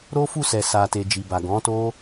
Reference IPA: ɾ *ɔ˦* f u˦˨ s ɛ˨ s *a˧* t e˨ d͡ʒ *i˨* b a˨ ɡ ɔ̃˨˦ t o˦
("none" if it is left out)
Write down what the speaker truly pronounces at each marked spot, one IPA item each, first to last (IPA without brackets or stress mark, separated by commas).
o˦, a˨, i˨